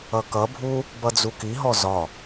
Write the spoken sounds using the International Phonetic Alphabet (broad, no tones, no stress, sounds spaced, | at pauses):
ʌ k ʌ bʱ u | b ʌ d͡z u k i ɦ ɔ z ɒ